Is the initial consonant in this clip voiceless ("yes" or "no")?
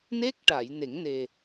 no